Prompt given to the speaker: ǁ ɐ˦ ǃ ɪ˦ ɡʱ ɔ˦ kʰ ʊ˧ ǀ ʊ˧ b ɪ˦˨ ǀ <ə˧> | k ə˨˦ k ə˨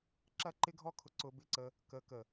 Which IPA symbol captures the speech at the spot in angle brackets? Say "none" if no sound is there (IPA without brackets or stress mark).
ə˧